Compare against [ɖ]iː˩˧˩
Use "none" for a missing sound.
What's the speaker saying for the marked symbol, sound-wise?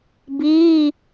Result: b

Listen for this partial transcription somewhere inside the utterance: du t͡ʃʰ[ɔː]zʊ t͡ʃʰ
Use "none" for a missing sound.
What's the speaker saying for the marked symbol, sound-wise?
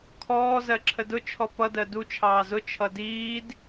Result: ɑː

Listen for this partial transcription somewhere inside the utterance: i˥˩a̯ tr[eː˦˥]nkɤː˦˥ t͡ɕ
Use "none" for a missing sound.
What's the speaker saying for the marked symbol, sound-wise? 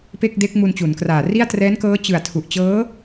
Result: ɛː˦˥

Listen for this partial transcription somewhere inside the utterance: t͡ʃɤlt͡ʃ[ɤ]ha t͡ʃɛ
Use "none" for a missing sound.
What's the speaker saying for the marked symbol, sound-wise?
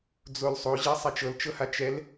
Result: ɤ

